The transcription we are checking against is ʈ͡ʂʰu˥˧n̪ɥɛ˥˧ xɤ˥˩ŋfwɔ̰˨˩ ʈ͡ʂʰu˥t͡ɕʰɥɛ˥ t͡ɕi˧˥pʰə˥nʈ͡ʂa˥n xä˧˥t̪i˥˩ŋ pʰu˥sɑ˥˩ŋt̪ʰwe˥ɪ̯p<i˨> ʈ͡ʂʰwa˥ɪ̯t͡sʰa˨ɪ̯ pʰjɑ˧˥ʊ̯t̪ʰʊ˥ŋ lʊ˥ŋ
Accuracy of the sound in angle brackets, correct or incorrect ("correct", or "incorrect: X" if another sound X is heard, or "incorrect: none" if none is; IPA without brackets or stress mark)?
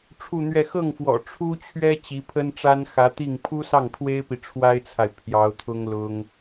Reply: correct